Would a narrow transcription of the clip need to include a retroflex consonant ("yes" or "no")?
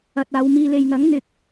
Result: no